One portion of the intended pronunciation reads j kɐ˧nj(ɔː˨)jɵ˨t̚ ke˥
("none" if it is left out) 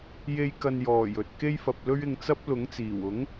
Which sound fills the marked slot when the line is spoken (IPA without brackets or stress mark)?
ɔː˨˩